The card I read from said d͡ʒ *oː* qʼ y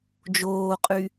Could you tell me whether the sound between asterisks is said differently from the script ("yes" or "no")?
no